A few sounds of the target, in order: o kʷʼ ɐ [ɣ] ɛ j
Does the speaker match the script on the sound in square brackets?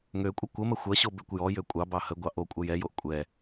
no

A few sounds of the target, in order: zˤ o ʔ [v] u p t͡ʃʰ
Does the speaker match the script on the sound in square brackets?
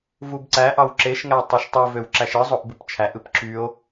no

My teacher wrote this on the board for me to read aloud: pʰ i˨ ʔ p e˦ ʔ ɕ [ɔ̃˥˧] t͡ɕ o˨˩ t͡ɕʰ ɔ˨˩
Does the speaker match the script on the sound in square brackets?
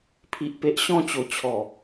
yes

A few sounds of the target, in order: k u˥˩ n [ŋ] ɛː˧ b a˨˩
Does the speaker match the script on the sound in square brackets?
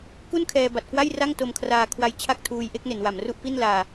no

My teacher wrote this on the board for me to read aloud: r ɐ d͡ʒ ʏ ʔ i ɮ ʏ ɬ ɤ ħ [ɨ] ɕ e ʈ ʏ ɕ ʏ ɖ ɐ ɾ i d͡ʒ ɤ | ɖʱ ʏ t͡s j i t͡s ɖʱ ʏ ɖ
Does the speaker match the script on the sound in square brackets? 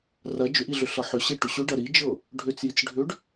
no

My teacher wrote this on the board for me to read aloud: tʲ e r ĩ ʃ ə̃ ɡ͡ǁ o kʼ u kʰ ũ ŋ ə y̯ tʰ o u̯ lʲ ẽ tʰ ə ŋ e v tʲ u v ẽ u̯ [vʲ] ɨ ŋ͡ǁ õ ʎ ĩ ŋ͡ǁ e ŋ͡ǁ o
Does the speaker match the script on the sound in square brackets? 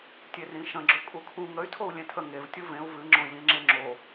no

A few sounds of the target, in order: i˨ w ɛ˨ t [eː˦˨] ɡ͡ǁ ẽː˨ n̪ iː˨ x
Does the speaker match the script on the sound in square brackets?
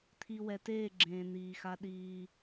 yes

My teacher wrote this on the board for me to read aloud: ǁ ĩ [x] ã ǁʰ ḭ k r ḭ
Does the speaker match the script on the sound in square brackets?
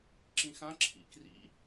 yes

